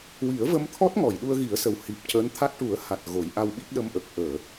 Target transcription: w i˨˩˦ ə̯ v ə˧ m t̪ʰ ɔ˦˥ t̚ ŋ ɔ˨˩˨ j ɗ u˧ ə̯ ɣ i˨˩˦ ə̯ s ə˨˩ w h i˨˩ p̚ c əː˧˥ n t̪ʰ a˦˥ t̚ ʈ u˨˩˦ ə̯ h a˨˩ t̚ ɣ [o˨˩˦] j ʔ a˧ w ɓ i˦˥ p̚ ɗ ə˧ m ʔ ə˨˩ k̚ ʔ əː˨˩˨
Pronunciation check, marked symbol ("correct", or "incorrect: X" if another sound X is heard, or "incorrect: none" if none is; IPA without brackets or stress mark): correct